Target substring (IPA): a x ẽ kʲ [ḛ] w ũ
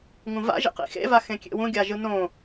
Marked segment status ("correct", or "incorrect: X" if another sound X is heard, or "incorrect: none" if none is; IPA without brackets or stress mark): correct